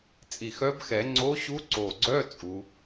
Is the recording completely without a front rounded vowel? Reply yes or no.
no